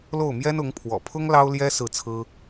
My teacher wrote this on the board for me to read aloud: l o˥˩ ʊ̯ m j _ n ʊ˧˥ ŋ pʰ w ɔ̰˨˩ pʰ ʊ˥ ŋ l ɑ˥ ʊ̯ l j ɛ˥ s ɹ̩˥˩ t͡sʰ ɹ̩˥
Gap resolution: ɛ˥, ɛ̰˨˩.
ɛ˥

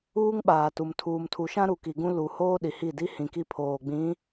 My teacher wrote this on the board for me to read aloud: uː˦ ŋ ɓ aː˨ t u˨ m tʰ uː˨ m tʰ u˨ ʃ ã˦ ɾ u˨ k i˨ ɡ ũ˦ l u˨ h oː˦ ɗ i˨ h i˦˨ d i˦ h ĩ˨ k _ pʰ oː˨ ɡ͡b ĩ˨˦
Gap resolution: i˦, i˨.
i˦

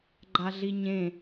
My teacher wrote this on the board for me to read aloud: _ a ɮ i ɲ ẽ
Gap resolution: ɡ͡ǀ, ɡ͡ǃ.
ɡ͡ǃ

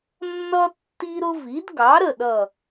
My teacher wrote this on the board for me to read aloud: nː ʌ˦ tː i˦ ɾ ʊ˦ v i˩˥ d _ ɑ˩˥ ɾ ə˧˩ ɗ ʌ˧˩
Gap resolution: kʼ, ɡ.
ɡ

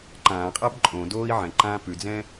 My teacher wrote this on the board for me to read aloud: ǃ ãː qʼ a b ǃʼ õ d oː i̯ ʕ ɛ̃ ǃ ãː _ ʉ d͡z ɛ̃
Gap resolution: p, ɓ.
p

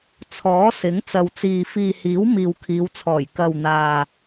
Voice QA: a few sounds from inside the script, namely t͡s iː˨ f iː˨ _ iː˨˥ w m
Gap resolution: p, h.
h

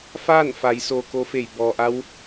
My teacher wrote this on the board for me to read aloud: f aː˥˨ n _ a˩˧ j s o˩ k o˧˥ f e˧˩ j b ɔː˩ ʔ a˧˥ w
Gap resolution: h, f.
f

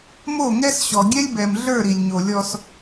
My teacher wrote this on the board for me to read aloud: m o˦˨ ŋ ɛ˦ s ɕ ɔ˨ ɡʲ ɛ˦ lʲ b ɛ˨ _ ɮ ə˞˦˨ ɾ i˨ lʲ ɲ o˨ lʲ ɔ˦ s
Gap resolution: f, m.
m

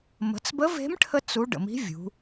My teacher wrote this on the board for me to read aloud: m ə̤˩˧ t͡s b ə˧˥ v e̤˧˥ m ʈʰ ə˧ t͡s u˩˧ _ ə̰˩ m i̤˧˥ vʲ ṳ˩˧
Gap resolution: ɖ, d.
ɖ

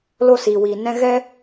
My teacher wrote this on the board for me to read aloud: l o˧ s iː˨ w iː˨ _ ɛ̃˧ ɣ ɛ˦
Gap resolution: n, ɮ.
n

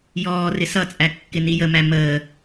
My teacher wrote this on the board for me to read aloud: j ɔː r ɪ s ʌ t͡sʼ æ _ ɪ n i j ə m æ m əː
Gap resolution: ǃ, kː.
kː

